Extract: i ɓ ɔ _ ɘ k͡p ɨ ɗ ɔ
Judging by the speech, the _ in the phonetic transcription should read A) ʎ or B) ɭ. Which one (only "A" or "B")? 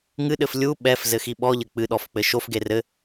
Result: A